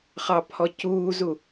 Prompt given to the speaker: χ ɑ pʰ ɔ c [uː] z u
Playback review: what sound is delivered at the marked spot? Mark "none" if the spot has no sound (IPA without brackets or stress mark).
uː